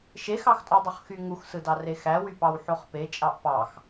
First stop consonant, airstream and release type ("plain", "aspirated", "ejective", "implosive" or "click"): ejective